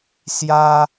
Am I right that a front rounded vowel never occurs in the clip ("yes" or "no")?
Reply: yes